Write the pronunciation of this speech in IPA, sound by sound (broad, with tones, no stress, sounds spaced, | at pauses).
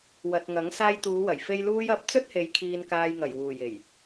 w ɐ˨ t̚ ŋ ɐ˨˥ ŋ s aː˧ j t̪ uː˨˧ w ɐ˨˩ j f e˧ j l uː˨ j ɐ˨˥ p̚ t͡s ɵ˥ t̚ h e˨˧ j kʰ iː˧ n k aː˧ j ŋ ɐ˨˩ j w uː˨˩ j e˨˩ j